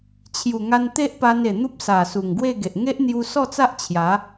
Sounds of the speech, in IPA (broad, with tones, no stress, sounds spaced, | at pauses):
t͡ɕʰ j u˨˩ ŋ a˧ n t̪ e˦ ʔ p a˧ n e˨˩ n̪ u˦ p̚ s a˨˩ s u˨˩ ŋ ɡ w e˥˧ ɡ e˨ ʔ ŋ e˦ ʔ n̪ j u˧ s ɔ˥˧ t͡s a˦ ʔ t͡ɕʰ j a˨˦